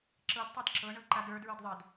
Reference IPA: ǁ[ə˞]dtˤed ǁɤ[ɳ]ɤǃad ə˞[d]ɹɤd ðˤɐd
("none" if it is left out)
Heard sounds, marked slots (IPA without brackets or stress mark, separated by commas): ɤ, ɳ, d